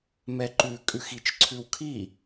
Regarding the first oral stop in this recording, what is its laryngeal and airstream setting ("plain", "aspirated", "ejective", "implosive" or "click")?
click